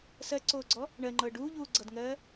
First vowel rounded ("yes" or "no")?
no